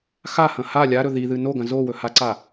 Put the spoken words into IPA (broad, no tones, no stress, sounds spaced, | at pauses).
x a h ɐ̃ h a lʲ a ɾ ɵ ð i ð ɨ n o ɡ ɐ̃ z o w ɵ h a ǀ a